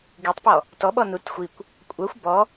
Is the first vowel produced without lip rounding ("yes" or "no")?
yes